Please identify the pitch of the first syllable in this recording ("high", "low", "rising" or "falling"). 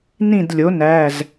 falling